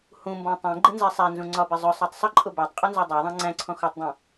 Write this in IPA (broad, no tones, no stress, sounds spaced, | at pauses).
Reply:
h ũ m b ɔ̃ tˤ ɛ̃ ɡ͡ǃ ɪ n z ɛ sˤ æ n z ũ ŋ͡ǀ ɒ b ɪ zˤ ʊ sˤ ɑ tˤ sˤ ɪ ǃʼ ʊ b æ tˤ qʼ ʊ n z ɔ dˤ æ ðˤ ɑ̃ ŋ͡ǀ æ̃ ǀʰ ɔ̃ x ɒ tˤ dˤ ɛ̃